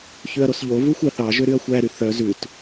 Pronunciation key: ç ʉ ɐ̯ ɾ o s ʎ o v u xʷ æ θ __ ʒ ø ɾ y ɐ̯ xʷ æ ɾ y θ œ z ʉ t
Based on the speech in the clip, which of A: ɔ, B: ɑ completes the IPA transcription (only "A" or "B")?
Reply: B